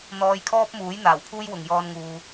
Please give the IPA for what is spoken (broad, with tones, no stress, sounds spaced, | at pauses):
n̪ ɔː˧ j kʰ ɔː˥ p̚ m uː˨˥ j n̪ aː˨˩ w pʰ uː˥ j w ʊ˨ ŋ j ɔː˧ n ŋ uː˨